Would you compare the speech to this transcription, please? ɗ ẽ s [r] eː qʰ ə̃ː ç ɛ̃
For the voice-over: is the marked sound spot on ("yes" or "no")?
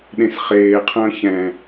no